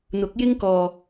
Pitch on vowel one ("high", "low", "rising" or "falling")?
rising